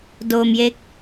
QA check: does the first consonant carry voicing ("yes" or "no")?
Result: yes